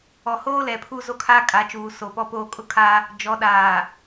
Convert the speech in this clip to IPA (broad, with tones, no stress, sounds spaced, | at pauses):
ɔ˨ h oː˦ l ɛ˨ pʰ u˦ z o˦ kʰ aː˦ kʼ a˨˦ t͡ʃ uː˨ s o˨ p ɔ˦ p oː˦ kʼ ʊ˦ kʰ a˦ | d͡ʒ ɔ˨˦ ɗ aː˨